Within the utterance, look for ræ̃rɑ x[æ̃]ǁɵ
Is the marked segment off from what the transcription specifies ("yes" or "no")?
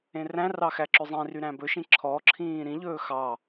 yes